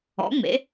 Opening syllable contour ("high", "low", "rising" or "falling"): rising